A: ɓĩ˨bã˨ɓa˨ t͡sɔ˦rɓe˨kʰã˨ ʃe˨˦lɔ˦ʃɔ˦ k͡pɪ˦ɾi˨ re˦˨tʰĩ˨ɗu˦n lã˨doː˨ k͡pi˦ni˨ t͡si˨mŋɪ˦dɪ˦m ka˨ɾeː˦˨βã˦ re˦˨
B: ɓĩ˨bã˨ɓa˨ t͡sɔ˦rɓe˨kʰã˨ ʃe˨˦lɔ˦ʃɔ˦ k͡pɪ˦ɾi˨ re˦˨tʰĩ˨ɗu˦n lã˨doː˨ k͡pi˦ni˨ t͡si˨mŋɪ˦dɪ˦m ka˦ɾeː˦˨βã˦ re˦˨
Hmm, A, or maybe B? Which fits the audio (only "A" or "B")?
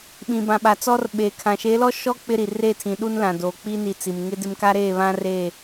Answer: B